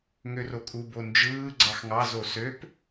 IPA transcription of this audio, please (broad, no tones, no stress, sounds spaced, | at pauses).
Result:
ŋ ø r o kʼ u b o n d͡ʒ ɯː ɡ͡ǀ ɑ x ŋ ɑ z o s ø p